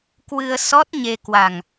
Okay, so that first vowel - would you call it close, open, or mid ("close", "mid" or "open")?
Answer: close